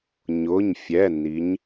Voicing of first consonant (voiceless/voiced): voiced